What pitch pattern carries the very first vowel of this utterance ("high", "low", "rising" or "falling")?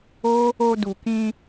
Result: high